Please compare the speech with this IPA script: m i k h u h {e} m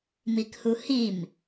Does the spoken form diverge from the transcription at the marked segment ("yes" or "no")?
yes